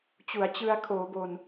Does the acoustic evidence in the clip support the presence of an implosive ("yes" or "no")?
no